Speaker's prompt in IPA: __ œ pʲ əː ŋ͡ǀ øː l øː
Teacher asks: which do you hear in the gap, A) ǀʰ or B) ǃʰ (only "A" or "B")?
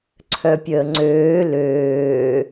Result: A